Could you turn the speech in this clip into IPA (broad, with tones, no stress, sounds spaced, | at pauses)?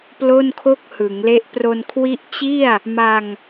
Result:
p l o˥˩ n kʰ o˥˩ k̚ h ɯ˩˦ ŋ l e˦˥ ʔ p r o˧ n kʰ w i˦˥ ʔ t͡ɕ i˥˩ a̯ | m a˧ ŋ